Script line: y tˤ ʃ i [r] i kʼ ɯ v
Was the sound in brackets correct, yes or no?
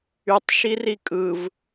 yes